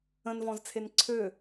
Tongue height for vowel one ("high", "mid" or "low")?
mid